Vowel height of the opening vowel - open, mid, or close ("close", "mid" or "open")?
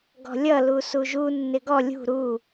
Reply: mid